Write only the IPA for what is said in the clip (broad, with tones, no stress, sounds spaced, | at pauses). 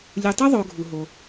lʲ u˨ tˤ ɨ˥ ðˤ o˨ ɡʱ u˩ ɦ o˩